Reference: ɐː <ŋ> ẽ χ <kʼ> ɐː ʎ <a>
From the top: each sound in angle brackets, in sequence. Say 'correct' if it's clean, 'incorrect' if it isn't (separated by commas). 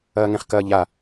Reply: correct, incorrect, correct